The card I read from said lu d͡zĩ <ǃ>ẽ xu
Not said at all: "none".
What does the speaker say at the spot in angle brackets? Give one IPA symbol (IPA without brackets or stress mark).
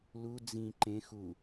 ǃ